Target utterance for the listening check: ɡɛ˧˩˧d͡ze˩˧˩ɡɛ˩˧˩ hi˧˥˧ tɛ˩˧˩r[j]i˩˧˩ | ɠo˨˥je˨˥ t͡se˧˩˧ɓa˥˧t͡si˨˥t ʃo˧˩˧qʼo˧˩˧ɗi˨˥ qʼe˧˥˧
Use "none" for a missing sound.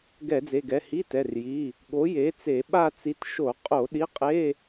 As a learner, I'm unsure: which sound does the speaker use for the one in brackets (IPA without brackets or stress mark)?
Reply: j